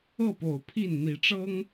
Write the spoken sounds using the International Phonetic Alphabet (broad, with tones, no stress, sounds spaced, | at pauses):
ɤ˥˨ p o˨˩ ʊ̯ pʰ i˥˨ n n̪ i˨˦ ʈ͡ʂ ɤ˦ ŋ